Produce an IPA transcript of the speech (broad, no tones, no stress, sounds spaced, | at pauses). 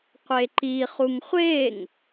qʷ e ǃ i χ u ŋ χʷ e ŋ